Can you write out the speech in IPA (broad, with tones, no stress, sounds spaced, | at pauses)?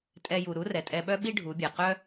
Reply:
tʼ ɛ˧ j u˩ ɾ u˧˥ r ɛ˩ tʼ ɛ˧ ɓ œ˥ ɓ i˥ ɖʱ u˩˧ bʲ ɛ˩ q œ˥